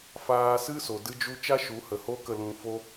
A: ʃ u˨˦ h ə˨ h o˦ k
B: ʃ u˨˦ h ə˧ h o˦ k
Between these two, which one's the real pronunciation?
A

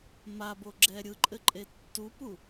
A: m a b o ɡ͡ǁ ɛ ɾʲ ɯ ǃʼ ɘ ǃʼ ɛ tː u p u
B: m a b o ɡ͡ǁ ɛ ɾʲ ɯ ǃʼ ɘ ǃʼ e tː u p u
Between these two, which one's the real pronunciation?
B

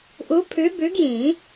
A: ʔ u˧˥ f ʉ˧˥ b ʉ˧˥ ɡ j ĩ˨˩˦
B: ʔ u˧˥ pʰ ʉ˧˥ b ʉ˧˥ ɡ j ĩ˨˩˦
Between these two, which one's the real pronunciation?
B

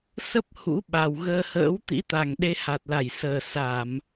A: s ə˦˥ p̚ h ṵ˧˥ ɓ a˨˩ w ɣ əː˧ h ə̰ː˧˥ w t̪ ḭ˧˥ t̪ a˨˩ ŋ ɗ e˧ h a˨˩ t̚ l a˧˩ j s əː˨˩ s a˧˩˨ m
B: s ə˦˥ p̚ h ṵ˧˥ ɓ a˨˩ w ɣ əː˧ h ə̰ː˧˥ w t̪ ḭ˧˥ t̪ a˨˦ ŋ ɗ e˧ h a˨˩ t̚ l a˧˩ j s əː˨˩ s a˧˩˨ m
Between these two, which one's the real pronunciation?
A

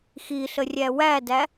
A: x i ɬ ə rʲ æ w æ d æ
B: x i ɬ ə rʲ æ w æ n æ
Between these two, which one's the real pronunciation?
A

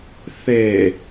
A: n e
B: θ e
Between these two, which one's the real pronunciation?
B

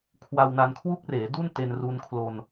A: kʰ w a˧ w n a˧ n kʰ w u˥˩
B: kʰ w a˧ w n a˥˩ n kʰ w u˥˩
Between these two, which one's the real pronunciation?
A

